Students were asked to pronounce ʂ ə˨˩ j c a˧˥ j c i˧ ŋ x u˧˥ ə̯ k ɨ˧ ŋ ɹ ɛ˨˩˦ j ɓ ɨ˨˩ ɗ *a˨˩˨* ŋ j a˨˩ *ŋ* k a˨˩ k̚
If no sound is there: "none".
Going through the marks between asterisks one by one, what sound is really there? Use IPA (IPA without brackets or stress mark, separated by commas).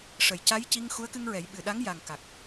a˧˥, ŋ